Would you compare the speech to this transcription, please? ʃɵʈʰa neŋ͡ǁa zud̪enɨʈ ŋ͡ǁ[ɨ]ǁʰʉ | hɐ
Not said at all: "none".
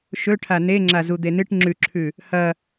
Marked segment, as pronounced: ʉ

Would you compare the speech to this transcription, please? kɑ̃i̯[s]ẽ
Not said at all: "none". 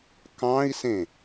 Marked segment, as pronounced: s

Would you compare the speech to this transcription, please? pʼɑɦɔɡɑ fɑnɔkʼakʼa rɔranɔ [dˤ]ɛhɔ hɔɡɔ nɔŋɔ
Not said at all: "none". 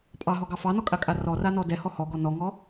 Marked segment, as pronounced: d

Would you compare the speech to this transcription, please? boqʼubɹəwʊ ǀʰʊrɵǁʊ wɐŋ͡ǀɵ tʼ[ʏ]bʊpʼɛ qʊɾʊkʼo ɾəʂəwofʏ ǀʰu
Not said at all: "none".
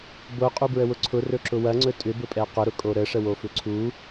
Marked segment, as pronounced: ʏ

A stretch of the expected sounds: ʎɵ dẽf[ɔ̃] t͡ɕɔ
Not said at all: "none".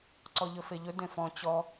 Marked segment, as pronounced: ɔ̃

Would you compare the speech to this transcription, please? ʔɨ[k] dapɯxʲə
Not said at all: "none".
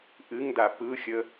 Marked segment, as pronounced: ŋ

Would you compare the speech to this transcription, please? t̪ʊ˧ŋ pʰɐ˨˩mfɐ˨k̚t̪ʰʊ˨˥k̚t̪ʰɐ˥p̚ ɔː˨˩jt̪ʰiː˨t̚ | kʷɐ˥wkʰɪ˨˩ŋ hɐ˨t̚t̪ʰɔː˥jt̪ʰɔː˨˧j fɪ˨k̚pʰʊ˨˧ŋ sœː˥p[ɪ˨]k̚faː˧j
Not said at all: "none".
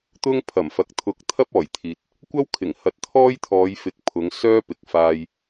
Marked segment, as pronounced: ɪ˨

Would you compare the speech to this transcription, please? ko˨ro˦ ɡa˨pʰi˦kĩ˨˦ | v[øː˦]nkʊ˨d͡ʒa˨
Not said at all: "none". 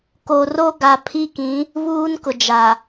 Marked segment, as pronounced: uː˦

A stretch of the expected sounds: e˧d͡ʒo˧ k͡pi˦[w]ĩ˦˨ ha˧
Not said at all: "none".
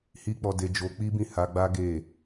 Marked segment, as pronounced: b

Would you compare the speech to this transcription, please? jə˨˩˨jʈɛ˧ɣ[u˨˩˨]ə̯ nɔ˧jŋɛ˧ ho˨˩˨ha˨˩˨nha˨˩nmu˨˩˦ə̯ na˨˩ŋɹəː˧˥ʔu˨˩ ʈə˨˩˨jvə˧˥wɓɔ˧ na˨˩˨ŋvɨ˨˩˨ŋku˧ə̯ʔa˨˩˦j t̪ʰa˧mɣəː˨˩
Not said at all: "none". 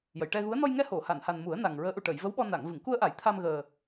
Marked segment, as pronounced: u˧˥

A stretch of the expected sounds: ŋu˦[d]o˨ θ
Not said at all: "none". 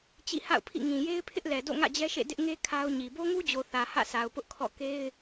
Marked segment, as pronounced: d͡ʑ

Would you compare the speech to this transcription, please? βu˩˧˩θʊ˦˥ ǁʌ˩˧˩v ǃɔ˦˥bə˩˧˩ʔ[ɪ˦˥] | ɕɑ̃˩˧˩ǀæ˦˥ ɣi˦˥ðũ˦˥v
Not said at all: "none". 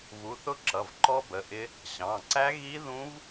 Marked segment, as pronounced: ɪ˦˥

